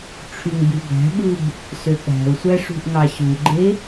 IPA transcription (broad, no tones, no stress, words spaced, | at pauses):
ʈ͡ʂʰyŋbybæ̤ɓɯb | søɠæ̤ʊ̯sʷæ ʂṳʔŋɑɕuɡ͡ǃe